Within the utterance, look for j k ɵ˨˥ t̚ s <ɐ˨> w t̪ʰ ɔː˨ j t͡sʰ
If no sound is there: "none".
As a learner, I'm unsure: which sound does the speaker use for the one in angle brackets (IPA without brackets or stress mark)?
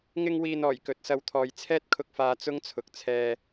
ɐ˧